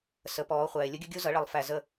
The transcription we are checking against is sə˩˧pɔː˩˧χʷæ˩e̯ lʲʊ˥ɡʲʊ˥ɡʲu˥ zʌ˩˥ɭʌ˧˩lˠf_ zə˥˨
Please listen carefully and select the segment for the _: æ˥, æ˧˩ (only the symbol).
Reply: æ˧˩